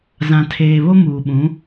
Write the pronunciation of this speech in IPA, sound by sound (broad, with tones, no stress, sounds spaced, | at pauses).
z ã˨ tʰ eː˨ β o˦ m uː˨ ɓ ũ˨˦